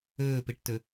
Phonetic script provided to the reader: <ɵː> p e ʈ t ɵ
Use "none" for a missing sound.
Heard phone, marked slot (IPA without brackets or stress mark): ɵː